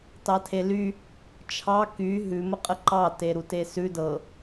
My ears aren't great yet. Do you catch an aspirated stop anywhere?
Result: yes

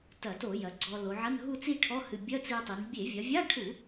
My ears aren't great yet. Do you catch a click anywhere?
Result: yes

